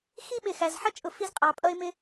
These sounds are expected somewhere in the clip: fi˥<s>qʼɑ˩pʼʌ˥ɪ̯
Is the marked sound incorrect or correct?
incorrect